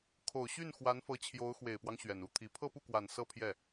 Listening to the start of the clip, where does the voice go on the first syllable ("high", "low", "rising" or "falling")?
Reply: low